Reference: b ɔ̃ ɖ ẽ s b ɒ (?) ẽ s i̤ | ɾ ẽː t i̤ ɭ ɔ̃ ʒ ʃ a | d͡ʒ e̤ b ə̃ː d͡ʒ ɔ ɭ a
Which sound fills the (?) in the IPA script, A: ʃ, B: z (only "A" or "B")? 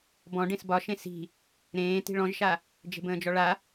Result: A